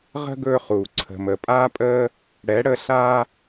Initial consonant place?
uvular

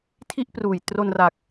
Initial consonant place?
alveolar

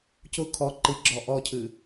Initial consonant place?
palatal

